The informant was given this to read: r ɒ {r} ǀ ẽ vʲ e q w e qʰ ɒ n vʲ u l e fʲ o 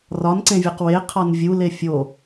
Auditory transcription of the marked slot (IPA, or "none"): n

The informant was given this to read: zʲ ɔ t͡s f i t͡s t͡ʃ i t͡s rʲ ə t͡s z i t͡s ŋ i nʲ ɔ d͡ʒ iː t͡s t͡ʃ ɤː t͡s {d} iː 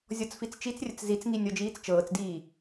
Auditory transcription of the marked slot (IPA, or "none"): d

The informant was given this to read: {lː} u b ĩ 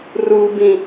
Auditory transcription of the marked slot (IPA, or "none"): r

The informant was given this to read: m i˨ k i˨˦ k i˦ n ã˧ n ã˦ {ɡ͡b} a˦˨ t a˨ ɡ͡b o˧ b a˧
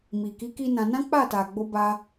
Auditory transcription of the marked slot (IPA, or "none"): k͡p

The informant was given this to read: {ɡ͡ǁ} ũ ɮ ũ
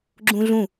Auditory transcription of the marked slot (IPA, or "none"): ɡ͡ǁ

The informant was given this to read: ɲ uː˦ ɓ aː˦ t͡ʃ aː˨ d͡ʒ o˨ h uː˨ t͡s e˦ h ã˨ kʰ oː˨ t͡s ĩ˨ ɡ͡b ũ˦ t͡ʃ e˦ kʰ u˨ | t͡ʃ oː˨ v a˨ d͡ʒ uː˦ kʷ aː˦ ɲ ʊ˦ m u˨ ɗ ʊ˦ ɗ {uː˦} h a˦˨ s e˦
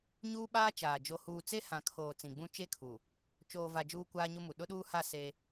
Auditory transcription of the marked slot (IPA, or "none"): uː˦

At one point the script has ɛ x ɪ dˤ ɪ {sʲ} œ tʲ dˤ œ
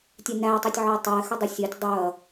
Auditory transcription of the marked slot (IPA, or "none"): sʲ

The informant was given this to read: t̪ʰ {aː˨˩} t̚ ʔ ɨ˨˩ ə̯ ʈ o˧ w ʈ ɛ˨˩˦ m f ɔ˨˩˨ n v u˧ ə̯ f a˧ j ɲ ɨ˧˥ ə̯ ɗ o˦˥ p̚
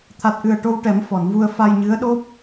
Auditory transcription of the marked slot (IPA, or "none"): a˨˩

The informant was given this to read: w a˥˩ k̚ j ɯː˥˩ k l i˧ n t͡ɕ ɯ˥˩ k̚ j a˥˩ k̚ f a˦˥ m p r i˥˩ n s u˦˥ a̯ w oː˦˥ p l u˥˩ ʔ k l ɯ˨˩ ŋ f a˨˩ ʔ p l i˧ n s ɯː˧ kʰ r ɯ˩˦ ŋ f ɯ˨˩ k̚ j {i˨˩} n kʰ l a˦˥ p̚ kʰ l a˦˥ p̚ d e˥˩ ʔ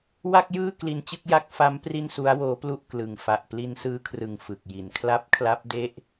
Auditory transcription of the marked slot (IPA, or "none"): i˨˩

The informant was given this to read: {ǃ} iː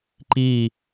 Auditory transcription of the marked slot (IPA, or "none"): ǃ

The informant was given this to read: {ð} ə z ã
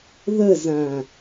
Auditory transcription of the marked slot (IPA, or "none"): ð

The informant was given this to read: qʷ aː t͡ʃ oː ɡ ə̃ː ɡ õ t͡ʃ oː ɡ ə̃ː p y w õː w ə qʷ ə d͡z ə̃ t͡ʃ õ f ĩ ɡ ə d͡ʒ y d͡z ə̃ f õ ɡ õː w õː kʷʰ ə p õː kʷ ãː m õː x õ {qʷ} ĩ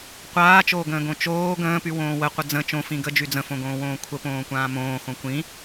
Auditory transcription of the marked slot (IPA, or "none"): kʷ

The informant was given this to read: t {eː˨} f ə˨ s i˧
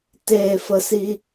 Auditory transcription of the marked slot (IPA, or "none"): eː˨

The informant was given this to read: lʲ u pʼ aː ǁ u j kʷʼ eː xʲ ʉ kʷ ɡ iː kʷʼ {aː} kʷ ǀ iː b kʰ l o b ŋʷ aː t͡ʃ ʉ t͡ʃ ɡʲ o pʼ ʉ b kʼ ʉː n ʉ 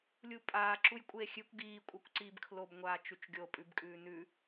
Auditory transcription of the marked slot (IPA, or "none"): a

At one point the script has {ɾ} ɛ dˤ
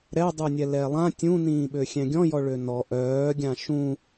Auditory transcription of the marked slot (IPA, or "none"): ɾ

